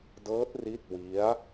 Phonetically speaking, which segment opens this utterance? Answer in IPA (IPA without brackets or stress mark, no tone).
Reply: d